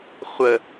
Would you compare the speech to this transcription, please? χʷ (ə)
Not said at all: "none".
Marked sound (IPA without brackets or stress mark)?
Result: ə